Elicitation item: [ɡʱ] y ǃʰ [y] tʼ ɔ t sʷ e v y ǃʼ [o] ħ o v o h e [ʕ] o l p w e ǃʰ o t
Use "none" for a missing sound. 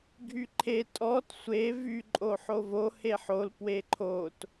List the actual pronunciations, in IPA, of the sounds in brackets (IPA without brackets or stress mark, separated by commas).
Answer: ɡʱ, e, o, ħ